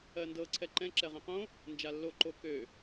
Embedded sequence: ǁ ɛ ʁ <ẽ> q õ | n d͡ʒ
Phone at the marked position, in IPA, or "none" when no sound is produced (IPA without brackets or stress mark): ɛ̃